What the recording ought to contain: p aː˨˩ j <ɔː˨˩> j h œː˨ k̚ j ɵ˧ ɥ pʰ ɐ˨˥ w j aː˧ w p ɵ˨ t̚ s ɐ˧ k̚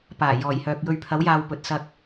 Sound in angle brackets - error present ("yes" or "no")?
no